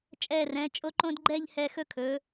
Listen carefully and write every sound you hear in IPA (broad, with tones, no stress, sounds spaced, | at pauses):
t͡ʃʼ ɛː˧˩ r ɛ̃˩˧ t͡ʃʼ o˧ ǃ õ˧ d ɡ͡ǃ ɛː˥˧ ʎ h ɛ˧ x ɵ˧ kʰ ɵː˩˧